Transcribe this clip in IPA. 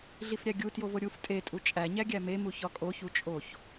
ɮ i f ɾʲ æ ɡʲ u t j o v o ɾʲ u f tʼ e tʼ u t͡ʃʼ æ ɲ æ ɡʲ æ m e m u ç ɒ kʼ o ç u t͡ʃʼ o ç

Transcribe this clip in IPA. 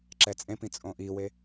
ǁ ɛ t͡sʼ ẽ p ĩ t͡sʼ õ ʔ i w e

